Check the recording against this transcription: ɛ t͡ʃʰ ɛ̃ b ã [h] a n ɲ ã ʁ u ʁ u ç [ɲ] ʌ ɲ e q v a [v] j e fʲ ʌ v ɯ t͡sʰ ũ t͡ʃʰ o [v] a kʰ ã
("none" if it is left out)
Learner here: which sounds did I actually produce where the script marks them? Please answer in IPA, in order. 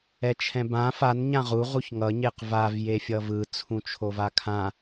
f, ŋ, v, v

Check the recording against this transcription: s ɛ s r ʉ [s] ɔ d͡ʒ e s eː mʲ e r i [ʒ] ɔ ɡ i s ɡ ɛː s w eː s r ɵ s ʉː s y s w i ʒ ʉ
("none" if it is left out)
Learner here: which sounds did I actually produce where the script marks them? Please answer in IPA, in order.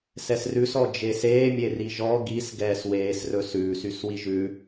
s, ʒ

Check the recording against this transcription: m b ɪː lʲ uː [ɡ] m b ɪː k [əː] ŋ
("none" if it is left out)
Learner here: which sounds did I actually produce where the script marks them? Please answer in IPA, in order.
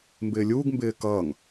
ɡ, ʌː

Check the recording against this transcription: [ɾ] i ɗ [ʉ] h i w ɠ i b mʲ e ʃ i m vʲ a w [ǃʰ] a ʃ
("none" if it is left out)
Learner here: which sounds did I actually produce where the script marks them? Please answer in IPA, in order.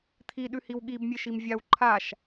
t̪ʰ, ʉ, ǃʰ

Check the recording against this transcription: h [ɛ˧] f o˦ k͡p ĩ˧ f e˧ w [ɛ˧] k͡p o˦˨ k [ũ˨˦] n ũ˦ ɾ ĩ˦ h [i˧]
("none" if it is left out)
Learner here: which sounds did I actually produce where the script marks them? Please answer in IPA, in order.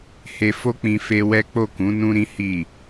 e˧, ɛ˦, ũ˨˦, i˦˨

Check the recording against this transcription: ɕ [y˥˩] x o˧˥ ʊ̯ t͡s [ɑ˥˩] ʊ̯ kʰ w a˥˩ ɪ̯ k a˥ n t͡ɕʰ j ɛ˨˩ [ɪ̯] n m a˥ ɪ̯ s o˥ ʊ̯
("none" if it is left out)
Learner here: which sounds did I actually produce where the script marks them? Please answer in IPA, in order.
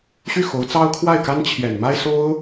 y˥˩, ɑ˥, none

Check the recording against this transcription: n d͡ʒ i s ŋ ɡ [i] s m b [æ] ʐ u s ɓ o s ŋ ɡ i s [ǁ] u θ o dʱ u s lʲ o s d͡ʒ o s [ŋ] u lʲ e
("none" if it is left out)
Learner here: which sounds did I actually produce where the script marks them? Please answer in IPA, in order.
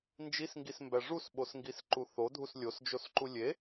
i, æ, ǃ, ǃ

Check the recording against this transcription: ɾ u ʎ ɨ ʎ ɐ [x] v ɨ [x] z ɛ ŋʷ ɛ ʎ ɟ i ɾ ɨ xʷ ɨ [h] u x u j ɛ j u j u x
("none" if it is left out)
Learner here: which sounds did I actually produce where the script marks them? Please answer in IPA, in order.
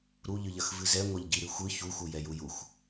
x, none, ç

